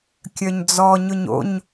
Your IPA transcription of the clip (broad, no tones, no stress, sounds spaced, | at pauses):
kʲ œ ɲ d͡z ɔ ɲ ʊ ɲ o̰ ɲ